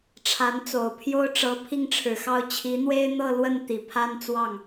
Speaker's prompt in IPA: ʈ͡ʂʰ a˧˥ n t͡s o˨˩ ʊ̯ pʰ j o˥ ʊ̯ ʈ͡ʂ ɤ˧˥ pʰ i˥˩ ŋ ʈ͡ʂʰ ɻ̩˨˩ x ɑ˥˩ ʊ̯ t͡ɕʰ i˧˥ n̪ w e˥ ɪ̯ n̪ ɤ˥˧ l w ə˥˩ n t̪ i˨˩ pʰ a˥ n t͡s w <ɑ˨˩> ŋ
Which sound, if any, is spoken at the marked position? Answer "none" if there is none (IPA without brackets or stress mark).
ɑ˥˩